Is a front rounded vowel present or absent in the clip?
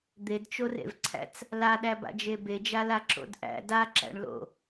absent